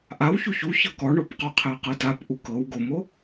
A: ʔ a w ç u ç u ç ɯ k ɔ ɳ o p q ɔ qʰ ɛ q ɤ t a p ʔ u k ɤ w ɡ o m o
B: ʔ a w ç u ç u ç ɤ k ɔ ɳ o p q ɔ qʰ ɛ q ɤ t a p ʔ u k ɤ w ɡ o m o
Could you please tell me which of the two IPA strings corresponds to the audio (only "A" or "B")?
B